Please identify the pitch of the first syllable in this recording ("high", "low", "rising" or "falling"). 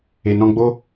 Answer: low